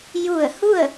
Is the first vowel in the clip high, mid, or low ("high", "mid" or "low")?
high